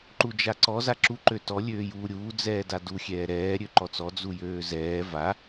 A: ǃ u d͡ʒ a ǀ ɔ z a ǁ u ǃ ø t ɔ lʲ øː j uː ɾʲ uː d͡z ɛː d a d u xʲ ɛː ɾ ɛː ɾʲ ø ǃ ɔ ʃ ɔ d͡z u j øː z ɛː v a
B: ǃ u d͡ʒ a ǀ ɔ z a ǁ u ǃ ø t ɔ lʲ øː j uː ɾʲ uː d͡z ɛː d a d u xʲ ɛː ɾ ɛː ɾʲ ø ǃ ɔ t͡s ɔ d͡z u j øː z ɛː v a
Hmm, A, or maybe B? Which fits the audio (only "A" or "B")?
B